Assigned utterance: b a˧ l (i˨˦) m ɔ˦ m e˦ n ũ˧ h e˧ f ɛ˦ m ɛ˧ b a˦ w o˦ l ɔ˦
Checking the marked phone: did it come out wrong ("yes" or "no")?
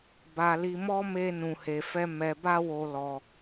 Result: yes